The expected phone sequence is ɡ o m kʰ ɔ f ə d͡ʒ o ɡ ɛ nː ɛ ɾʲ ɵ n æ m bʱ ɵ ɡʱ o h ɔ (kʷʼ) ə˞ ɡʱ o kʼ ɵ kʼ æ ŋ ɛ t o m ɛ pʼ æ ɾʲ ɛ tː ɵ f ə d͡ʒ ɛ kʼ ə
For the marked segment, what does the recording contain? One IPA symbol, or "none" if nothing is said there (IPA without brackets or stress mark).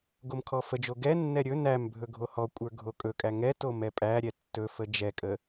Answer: kʷʼ